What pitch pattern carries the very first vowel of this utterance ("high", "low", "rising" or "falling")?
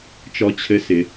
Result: high